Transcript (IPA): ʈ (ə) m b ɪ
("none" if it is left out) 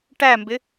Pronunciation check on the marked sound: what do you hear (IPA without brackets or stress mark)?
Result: æ